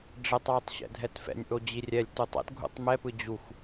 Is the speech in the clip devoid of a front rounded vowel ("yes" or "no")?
yes